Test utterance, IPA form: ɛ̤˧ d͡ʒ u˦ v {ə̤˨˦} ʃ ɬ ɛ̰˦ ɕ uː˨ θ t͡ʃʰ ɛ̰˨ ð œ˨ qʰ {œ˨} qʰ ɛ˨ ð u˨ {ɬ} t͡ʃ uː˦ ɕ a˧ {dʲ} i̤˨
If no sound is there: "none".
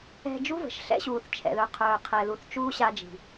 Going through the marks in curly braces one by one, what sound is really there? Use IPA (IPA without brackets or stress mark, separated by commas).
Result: ə̤˨, œː˨, θ, d͡ʒ